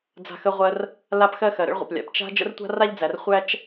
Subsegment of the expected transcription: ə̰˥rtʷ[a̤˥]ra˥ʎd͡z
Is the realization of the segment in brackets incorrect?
no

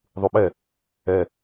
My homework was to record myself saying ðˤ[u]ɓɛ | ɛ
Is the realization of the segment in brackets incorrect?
no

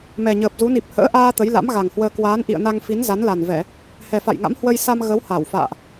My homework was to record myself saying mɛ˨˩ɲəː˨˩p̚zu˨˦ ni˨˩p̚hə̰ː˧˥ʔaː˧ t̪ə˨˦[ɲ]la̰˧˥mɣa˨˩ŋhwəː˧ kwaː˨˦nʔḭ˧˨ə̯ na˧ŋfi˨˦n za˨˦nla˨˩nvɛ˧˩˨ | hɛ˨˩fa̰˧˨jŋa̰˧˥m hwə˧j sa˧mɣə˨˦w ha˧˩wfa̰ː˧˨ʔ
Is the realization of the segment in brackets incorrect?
yes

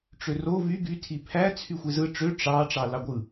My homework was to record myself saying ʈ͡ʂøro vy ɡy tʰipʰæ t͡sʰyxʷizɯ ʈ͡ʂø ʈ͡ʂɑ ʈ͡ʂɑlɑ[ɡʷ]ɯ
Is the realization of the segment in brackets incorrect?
no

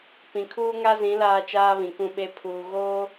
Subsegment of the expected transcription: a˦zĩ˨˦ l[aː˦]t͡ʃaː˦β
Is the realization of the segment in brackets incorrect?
no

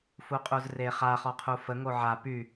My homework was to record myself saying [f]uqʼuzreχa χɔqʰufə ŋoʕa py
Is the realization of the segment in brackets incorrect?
no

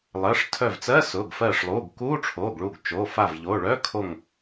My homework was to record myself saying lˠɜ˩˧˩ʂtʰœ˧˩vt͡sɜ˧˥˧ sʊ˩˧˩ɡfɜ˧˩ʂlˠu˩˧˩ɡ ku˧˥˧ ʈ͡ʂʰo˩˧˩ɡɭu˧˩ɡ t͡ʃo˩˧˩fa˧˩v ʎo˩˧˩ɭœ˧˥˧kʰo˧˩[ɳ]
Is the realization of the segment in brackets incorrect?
yes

